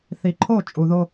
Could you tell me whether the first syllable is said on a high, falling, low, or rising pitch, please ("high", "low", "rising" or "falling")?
low